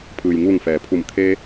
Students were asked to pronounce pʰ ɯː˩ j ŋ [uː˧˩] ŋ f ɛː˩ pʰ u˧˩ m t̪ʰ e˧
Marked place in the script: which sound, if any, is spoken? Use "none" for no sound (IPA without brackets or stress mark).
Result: uː˧˩